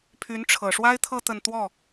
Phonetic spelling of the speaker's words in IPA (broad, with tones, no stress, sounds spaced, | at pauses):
pʰ y˧˥ n ʈ͡ʂʰ ɤ˨˩ ʂ w a˥ ɪ̯ t̪ʰ ɤ˥˧ t̪ ə˥˧ n t̪ w ɔ˥˩